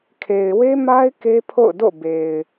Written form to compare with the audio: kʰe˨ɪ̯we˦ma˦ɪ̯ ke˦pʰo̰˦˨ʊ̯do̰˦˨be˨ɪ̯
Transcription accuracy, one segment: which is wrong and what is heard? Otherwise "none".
none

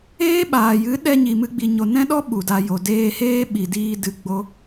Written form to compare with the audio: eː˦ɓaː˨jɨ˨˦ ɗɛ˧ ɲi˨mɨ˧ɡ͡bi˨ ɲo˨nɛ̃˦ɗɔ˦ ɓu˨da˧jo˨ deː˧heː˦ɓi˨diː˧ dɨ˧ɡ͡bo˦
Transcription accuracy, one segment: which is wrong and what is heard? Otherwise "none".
none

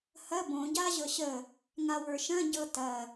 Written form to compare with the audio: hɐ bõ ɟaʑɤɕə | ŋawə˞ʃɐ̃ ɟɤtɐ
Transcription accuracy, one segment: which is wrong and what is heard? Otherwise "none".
none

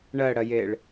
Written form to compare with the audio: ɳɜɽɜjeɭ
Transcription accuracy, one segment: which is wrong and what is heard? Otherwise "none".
none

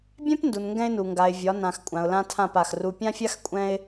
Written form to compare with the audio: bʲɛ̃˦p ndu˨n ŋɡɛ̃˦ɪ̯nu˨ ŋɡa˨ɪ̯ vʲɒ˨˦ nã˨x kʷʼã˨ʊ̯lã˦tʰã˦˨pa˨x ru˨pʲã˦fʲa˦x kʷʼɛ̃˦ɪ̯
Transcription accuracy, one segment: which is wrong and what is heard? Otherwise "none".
none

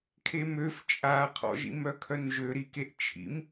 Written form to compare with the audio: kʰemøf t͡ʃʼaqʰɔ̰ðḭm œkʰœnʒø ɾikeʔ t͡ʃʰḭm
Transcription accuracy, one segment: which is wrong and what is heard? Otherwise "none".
ð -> ʒ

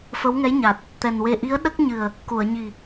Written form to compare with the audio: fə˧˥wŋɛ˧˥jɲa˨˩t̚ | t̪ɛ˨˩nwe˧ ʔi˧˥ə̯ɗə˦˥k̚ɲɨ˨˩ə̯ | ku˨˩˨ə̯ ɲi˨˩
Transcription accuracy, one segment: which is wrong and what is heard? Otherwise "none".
none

